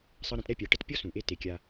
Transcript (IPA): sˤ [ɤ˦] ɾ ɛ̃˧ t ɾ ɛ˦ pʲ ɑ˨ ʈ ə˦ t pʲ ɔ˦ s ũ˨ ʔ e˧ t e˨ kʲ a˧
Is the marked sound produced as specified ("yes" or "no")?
yes